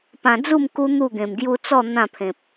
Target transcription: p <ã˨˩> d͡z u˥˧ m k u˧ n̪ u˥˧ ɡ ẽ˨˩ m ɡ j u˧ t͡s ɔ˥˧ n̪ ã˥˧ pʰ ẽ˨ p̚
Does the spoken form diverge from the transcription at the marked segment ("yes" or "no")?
no